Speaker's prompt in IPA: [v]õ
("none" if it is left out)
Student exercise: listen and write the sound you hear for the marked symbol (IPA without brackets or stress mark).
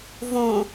v